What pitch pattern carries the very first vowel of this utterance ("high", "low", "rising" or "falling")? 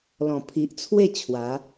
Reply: low